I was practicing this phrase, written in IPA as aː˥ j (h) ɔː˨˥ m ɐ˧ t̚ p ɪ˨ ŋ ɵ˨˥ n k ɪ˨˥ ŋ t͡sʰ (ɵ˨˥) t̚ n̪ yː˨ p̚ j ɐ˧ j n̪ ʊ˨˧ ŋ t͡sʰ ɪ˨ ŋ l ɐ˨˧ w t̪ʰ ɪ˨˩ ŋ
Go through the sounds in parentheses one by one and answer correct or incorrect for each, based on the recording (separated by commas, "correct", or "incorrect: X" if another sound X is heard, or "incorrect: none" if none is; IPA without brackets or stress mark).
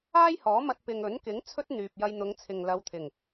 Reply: correct, incorrect: ɵ˥